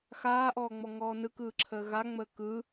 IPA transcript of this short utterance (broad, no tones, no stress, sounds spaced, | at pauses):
x aː ʔ ɔː ŋ͡m ɔ ŋ ɔː n ɯ k ɯː ǁʰ əː ɣ a ŋ͡m əː k ɯ